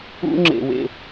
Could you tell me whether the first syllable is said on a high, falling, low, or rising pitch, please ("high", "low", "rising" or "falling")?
high